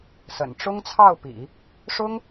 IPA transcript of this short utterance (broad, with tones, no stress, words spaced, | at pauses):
sə̰˨˩n ʈ͡ʂʊ˥ŋt͡sʰɑ˥˩ʊ̯pḭ˨˩˦ | ʂʊ˥ŋ